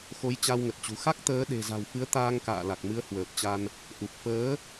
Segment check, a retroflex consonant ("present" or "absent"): absent